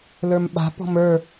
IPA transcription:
lə˞mɓa̤pɔ̤m ə˞

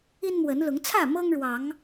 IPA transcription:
i˦nmwə˨˦n lʊ˨˦ŋt͡sʰä˥˨ mɤ˦ŋɻwɑ˨˦ŋ

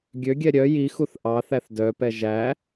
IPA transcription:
ɡʲøɡʲɛ ɾʲœ jixuθ ʔɑθæθ dœpɛ ʒæ

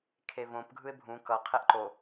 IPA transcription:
kʰevõp ɡʱɯɪ̯bʱũ kʌ qʰɛʔǃo

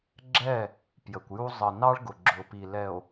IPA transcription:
ɡ͡ǁɛ˦˨ | pjə˨kʷju˦ zˤə˨nɑ˦ɭɡʊ˨ ɡ͡ǁʊ˨pi˨lɛ˨o̯

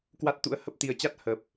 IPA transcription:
kwa˦˥t̚t̪ṵ˧˥ə̯hə˦˥p̚ t̪i˨˩ə̯t͡ɕa˦˥t̚ hə˨˩p̚

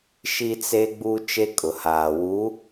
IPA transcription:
ʃi˦t͡se˦ ɡ͡buː˦t͡ʃe˦ kʼʊ˨haː˨ wu˨˦

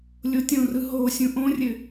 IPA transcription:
lʲotʲõrɯ ɦosʲũ ʔõrʲɘ

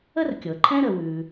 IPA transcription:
ə˥rkʲɤ˩ǃʰɛ̃˥ ɾə˩wʉ˩

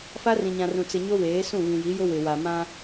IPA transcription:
fa˦rĩ˨ɲã˨rũ˨ t͡sɪ˨ ɲo˦weː˨˦ sũ˦˨βĩ˨ji˨˦jʊ˦ wɪ˨wa˨ mã˦

